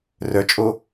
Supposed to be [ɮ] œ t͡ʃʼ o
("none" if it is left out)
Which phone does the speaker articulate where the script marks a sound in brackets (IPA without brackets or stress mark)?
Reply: r